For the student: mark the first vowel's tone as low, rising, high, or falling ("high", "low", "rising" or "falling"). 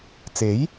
rising